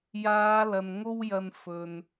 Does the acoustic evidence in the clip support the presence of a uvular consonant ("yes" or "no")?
no